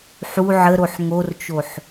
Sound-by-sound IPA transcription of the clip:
ħ u ʕ ə ɾ o ħ ŋ o r t͡ʃ o ħ

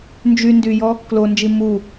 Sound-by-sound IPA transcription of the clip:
n d͡ʒ y n d y j ɔ | k l o n d͡ʒ i m u

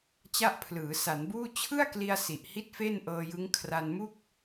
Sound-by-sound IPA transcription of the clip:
t͡ɕ a˥˩ ʔ pʰ l ɯː˩˦ s a˩˦ n b uː˥˩ t͡ɕʰ ɯ˥˩ a̯ k l i˧ a̯ s i˨˩ ʔ h i˥˩ t̚ f e˥˩ n ʔ ɤː˧ j ɯ˦˥ ŋ kʰ r a˧ n m u˥˩ k̚

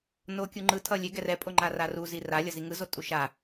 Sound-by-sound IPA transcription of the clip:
n o kʲ u ŋ͡ǃ ɯ tʰ ʌ lʲ e ɡ ɛ r ɛ pʼ o ŋ͡ǃ a r a r u z i r a lʲ ʌ z i ŋ ɯ z o tʼ u ʃ a

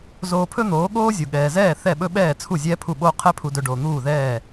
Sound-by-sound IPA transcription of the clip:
z oː˧ pʰ ɵ˥ n̪ oː˩˥ ɠ oː˥ zʲ u˩ ɠ ɛː˩ z ɛː˥˩ θ ɛ˥˩ ɓ ɵ˥ ɓ ɛː˥˩ t͡sʰ u˥˩ zʲ ɛː˥ pʰ u˥˩ ɓ oː˥ qʰ ɛ˥ pʰ u˧ d ɵ˧ ɖ o˩ n̪ uː˥˩ ð ɛː˥˩

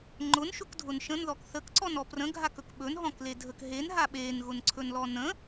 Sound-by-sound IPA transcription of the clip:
ŋ͡ǃ ʊ n ʃ ʊ k dʱ ʊ n ʃ ə̃ n ð ɔ k θ ə k ǀ ɔ n ɔ p r ə̃ ɡʱ a k ɵ k ɓ ɵ n ɦ ɔ̃ k l e dʱ ə k ɦ e n ɦ a ɓ e n ɣ ʊ n ǀʰ ɵ n l ɔ n ə̃

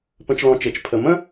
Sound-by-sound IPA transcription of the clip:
p ə̃˧ t͡ʃ l ɔ̃˧ t͡ʃ e˨ t͡ʃ pʰ ə˨ m ə̃˦

